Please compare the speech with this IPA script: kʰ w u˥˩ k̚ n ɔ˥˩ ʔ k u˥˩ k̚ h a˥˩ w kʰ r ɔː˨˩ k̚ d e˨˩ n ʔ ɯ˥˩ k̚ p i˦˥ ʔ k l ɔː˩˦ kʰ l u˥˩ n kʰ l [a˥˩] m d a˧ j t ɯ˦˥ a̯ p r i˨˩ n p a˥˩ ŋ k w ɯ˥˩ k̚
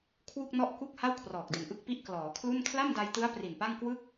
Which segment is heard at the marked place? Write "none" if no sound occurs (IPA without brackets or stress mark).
a˥˩